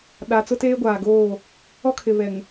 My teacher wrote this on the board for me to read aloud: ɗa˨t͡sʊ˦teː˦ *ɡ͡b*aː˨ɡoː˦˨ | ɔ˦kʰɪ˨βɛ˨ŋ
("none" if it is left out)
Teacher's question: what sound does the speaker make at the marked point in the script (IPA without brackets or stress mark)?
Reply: ɡʷ